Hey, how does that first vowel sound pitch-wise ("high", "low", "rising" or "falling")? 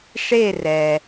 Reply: falling